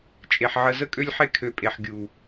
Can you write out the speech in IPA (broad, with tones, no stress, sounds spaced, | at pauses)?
t͡ʃʼ e˨ ħ ʕ ə˧ z ə˦ kʼ ø˦ lʲ ħ e˦ kʰ ø˧ pʼ e˨ ħ ɡʲ u˨